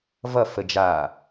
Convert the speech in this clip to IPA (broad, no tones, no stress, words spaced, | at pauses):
vʌ fəd͡ʒa